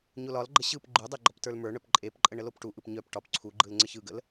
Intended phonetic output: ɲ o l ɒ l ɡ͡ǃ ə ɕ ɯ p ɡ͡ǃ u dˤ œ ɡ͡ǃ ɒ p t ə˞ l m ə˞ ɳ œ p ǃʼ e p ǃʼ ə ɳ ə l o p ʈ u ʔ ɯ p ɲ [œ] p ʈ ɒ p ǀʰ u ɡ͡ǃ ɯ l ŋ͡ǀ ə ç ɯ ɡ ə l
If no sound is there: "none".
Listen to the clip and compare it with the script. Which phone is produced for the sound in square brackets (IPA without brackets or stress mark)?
œ